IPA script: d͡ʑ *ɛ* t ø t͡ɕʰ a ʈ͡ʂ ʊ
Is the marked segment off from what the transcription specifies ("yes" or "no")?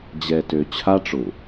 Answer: no